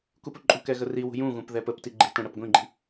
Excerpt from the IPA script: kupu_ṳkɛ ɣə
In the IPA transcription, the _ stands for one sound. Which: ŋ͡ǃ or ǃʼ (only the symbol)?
ǃʼ